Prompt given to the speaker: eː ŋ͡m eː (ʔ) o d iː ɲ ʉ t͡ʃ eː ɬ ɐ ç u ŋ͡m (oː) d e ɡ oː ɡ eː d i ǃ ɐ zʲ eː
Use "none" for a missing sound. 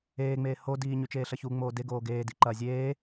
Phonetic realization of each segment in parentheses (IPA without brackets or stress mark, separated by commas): h, oː